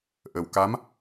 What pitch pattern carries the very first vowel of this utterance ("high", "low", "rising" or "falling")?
low